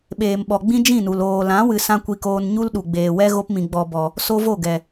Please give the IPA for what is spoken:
ɓ eː˨ m ɓ ɔ˨ ɡ͡b ĩ˦ d͡ʒ ĩ˦˨ n u˨ l oː˨ l ã˨˦ w ɨ˧ s ã˦ kʷ i˧ k oː˧ n ɲ u˦ l ɗ u˨ ɡ͡b eː˨ w ɛ˦ ɣ o˧ p m ĩ˨ ɡ͡b ɔ˨ b ɔ˨ | s o˦ v o˦˨ ɡ ɛ˨

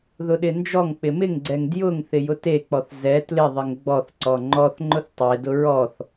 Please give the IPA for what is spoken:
ð ʊ ɗ ɪ n d͡ʒ ɔ ŋ k͡p ɪ m ɪ ŋ ɡ͡ǀ ɛ ŋ d j ʊ ŋ θ ɪ j ʊ t e k͡p ɔ θ z ɛ t l ɪ ðˤ ɪ ŋ ɡ͡b ɔ θ ǀ ɔ ŋ͡ǃ ɔ θ ŋ͡ǃ ʊ θ tˤ e d ʊ ɹ ɔ θ

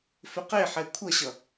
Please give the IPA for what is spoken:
f ʏ q e ħ ɛ kʷʰ ʌ ɕ ʌ

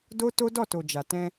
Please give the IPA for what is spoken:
d o˦ t o˦ d ɔ˦˨ t o˨ d͡ʒ a˨ t ɛ̃˧

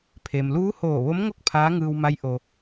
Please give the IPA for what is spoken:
pʰ e˩ m l uː˧˥ h oː˧˩ ʋ o˧˥ m ŋ o˥˨ k̚ pʰ aː˧˥ ŋ ɯː˧ w m a˧˥ j ʔ o˧

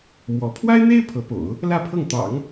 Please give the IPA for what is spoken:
m w ɔ˧˥ pʰ w a˥ ɪ̯ n̪ e˥ ɪ̯ pʰ ɤ˧˥ p o̰˨˩˦ ʊ̯ | l ä˥˧ pʰ ɤ˥˩ ŋ t̪ ɑ̰˨˩˦ ŋ

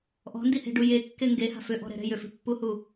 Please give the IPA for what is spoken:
ʔ ɔ̤ n d i h e̤ ɖ u j e kː e ŋ ɡ e h a̤ f ʏ ʔ ɔ̤ ɾ ɛ̤ ɾ ɛ̤ j ʏ f e̤ pː u h u

